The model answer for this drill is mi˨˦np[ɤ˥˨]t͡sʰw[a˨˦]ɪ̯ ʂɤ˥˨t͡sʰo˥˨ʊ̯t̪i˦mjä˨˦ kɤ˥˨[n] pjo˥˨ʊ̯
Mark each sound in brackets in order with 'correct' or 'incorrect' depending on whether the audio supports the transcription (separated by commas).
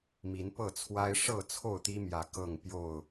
correct, incorrect, incorrect